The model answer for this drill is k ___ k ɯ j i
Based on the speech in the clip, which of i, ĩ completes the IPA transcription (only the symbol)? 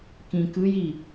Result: ĩ